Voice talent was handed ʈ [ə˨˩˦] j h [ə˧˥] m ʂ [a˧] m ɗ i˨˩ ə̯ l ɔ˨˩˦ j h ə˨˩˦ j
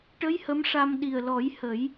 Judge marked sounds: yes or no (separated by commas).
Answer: no, yes, yes